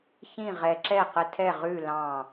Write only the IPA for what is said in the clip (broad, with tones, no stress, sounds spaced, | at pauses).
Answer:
ç ĩ˥˨ ʁ ɛ˧ ǁ ɛ˥˨ q ə˧ tʰ ɛ˥˨ ʁ ʉ˥˨ l ɑ̃˥˨